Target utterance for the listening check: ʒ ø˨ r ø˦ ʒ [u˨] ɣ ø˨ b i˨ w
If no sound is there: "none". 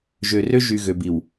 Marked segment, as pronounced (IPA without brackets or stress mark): y˨